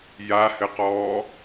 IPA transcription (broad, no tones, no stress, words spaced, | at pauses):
jahɘqɔː